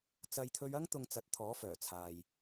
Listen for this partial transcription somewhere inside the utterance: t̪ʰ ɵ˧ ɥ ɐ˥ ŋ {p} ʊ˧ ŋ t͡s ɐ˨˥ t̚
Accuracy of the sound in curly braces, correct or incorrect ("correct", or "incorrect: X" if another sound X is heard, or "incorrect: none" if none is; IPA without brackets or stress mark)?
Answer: incorrect: t̪